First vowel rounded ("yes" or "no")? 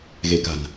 no